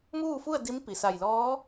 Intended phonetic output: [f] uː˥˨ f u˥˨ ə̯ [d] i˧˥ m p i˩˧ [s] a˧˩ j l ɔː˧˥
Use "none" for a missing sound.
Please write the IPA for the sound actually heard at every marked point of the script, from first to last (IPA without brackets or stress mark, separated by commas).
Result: m, d, s